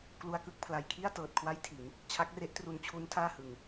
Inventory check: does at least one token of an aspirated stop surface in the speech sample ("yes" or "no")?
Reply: yes